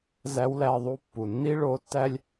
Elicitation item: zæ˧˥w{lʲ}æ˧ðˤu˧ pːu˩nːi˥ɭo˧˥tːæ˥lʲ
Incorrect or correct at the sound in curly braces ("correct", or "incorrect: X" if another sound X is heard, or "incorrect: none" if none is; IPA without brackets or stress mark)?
incorrect: l